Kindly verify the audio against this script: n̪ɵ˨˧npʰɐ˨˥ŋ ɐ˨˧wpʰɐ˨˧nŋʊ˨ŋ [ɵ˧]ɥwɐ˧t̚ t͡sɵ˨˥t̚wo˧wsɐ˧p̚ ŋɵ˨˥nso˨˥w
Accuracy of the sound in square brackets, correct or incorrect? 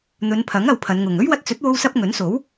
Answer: incorrect